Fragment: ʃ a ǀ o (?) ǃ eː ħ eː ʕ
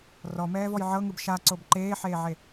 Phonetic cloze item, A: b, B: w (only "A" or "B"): A